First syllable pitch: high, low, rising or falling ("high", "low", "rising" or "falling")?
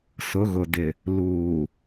rising